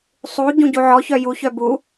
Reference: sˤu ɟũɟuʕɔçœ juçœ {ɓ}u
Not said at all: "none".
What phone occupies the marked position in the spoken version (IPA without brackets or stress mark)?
b